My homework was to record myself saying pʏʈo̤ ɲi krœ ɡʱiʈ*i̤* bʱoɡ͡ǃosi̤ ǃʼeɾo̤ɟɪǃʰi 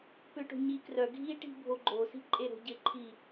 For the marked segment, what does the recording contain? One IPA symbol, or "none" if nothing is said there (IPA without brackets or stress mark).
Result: i̤